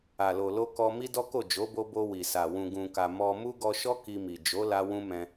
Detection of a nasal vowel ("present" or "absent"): present